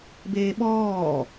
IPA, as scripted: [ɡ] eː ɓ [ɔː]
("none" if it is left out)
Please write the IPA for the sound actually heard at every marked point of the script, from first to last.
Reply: b, ɔː

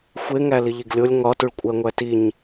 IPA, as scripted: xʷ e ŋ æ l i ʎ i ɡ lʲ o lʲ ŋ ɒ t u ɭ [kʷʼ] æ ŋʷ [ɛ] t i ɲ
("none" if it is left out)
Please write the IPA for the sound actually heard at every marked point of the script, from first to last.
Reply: kʷʼ, æ

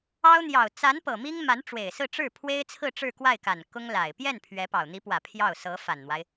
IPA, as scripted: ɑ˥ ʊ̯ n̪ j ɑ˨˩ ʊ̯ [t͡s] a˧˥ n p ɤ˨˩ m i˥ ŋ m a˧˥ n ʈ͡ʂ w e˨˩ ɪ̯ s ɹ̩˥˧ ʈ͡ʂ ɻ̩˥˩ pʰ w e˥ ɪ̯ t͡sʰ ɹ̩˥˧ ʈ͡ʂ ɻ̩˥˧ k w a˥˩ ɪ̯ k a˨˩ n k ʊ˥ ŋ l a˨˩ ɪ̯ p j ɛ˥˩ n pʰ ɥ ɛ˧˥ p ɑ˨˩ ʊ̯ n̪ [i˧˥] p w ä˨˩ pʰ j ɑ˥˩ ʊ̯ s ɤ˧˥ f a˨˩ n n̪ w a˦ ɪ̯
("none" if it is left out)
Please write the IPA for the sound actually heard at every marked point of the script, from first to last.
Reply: t͡s, i˧˥

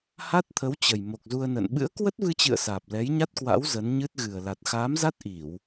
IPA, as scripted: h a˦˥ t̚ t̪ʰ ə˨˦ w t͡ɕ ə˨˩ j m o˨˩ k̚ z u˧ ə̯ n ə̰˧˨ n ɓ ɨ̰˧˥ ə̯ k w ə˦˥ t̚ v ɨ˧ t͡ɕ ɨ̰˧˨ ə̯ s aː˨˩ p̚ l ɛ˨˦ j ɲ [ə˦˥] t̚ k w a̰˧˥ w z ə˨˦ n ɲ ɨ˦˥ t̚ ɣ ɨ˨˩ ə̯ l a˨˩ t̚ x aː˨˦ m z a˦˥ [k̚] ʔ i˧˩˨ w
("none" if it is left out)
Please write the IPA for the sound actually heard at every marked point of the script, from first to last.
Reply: a˦˥, t̚

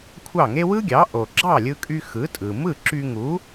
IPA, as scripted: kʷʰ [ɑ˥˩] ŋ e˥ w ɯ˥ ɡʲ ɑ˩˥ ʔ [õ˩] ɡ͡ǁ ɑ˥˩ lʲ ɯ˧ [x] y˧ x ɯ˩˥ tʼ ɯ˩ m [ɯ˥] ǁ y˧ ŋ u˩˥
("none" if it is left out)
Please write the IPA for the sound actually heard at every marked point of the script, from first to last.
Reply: ɑ˥˩, o˩, kʼ, ɯ˥˩

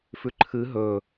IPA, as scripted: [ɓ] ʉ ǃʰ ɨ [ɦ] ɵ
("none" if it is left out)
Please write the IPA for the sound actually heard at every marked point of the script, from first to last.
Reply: f, ɦ

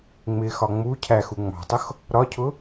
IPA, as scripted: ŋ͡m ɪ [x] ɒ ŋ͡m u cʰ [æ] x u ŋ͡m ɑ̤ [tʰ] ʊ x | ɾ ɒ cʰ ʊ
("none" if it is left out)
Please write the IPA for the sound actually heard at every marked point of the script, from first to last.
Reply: x, æ, tˤ

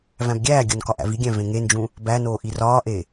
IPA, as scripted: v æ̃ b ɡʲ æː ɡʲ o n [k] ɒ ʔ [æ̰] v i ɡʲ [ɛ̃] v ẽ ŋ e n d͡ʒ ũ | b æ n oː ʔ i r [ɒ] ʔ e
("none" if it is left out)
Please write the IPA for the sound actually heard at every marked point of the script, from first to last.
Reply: k, æ̰, æ̃, ɒː

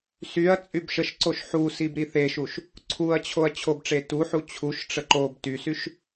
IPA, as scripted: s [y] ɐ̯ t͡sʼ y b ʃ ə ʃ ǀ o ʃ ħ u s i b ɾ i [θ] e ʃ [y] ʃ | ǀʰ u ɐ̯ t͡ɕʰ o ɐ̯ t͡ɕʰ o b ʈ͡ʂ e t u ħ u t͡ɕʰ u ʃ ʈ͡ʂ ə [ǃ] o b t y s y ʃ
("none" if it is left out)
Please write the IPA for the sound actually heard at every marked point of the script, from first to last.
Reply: y, θ, u, ǃ

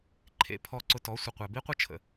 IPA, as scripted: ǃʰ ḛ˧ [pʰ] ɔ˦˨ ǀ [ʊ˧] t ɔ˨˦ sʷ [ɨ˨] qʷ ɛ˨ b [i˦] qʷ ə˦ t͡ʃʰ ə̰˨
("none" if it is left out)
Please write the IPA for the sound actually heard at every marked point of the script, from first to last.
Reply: pʰ, ʊ˧, ə˨, i˦

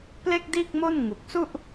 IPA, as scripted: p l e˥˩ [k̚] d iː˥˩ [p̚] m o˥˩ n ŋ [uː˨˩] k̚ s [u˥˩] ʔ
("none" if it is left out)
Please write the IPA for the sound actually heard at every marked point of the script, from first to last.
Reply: k̚, k̚, u˨˩, u˥˩

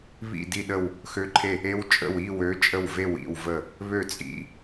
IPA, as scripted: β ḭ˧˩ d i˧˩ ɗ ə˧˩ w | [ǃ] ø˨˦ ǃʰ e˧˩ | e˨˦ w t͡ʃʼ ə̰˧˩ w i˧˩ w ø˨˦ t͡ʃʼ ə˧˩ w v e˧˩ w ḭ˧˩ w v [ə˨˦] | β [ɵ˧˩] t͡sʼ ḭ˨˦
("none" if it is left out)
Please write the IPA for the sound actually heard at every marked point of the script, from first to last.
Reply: x, ə˧˩, ø˧˩

